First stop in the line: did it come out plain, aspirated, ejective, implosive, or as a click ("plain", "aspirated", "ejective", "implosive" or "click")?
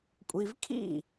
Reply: ejective